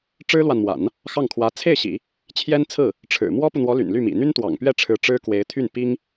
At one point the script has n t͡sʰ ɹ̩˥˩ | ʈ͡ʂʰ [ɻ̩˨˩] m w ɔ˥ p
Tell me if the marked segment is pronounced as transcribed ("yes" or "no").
yes